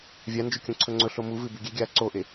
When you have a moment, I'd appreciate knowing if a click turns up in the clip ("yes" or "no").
yes